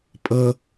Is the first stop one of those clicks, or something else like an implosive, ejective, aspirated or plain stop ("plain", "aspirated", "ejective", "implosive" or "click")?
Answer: ejective